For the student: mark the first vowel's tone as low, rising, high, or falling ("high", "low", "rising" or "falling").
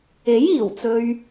rising